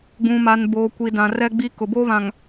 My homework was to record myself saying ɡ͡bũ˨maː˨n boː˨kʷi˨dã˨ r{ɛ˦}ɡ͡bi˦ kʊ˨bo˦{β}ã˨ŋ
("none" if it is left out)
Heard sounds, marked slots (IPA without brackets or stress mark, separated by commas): ɛ˦, β